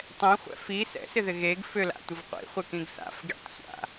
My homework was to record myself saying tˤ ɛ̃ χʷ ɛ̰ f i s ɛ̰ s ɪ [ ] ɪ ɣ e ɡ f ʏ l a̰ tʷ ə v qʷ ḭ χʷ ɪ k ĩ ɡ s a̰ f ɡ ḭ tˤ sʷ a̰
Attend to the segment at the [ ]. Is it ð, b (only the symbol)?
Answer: ð